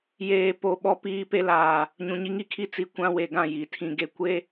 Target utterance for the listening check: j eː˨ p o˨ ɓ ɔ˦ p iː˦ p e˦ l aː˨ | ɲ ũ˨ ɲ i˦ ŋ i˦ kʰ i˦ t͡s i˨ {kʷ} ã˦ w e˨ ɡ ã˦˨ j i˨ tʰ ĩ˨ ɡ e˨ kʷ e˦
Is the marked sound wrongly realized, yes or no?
no